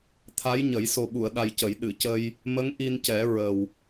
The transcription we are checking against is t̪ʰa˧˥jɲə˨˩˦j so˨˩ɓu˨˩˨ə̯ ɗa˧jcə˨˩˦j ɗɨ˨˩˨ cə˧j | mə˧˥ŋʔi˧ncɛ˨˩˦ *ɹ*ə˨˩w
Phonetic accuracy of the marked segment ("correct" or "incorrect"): correct